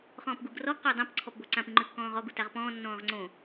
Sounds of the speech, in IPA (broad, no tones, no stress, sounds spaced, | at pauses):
χ ɔ̃ː p ɡ u ɡ r ɔ ɡ q o dˤ ã p ǀʰ ɔ p b o ǀ ã p ĩ ŋ͡ǃ ʉ kː ɔ̃ː ʁ ɔ ɡ u t a ʁ p ɔ̃ː nː ɔ̃ː ʁ ŋ͡ǀ õ